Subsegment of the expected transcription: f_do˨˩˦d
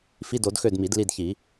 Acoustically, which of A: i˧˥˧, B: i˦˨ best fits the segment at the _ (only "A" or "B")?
A